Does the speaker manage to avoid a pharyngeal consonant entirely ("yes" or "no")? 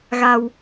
yes